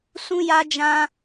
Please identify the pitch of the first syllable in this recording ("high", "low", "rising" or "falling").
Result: high